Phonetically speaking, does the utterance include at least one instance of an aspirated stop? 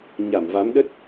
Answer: no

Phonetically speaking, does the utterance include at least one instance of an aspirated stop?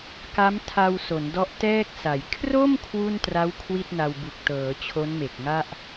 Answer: yes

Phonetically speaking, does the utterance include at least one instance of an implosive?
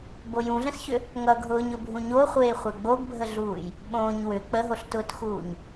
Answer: yes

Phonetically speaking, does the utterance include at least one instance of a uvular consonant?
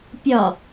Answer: no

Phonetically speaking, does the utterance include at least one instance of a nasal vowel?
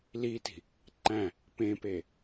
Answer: yes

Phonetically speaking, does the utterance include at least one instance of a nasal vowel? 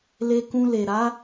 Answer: yes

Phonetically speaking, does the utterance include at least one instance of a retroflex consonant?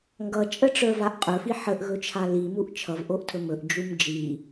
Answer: yes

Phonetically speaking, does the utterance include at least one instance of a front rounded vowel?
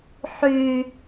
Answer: yes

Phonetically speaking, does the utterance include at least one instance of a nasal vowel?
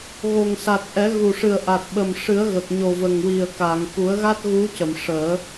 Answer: no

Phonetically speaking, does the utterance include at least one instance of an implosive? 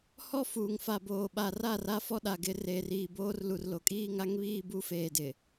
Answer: yes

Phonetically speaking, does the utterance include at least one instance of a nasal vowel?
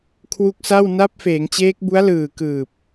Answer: no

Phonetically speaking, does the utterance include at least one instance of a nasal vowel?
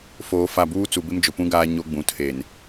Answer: yes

